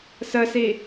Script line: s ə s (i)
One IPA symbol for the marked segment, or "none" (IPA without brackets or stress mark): i